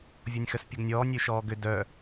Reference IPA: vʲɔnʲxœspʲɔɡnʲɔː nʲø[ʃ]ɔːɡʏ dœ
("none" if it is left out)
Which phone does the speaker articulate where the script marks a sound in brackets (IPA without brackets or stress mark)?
ʃ